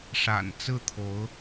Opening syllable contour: low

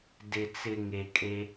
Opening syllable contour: low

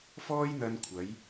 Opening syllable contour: high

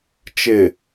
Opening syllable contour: low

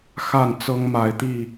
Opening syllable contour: falling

